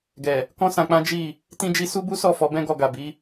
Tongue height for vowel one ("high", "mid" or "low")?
mid